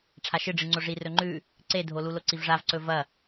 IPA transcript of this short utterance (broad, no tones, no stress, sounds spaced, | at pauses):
ʈ͡ʂʰ a ʃ ɨ ɖ͡ʐ ɨ ŋ͡ǀ o ʐ i r ɵ ŋ͡ǃ ʉ | ǀ e dʱ o l u l o ǀ i v ʐ a v ǀ ɵ v ɐ